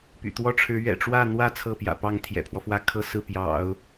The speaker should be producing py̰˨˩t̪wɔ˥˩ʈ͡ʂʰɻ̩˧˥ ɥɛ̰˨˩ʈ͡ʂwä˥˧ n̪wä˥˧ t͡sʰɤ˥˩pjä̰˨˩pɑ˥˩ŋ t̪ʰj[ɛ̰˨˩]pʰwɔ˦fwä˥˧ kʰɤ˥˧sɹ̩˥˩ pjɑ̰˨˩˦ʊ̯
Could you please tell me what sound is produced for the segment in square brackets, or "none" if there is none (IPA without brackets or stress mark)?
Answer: ɛ̰˨˩